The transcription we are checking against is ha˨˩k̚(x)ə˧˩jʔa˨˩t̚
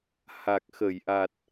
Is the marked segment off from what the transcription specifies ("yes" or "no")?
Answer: no